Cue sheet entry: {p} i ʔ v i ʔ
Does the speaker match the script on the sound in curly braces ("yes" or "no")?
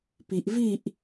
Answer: yes